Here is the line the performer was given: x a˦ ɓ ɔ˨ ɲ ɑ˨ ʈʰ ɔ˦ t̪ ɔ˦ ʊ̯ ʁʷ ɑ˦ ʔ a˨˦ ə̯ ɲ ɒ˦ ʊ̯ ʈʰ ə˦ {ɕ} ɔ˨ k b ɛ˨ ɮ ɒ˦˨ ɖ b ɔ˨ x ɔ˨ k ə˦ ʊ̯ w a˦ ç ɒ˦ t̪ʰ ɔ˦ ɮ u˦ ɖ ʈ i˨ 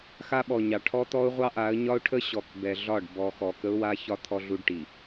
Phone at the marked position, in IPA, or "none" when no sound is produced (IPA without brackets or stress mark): ɕ